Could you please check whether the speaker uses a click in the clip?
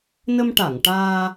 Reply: no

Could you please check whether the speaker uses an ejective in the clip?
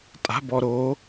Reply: yes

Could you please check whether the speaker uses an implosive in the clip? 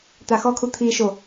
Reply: no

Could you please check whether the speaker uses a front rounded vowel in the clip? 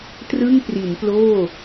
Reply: no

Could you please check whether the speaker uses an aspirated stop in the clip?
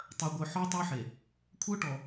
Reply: yes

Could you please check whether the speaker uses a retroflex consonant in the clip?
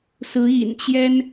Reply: no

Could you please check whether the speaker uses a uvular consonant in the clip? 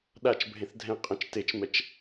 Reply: yes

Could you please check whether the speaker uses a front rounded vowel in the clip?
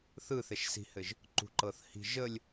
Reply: no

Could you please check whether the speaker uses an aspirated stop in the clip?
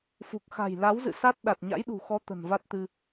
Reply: no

